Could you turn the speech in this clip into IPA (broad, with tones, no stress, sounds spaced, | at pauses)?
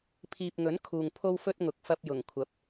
pʰ iː˨ p̚ ŋ ɵ˨˥ n kʰ uː˨ ŋ pʰ o˥ w f ɵ˥ t̚ ŋ ʊ˨˥ k̚ f ɐ˧ p̚ j ʊ˨˩ ŋ kʷʰ ɐ˨˥ p̚